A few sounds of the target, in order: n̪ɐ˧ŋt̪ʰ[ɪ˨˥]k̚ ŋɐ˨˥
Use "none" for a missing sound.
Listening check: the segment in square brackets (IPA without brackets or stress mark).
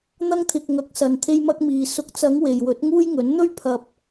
ɪ˨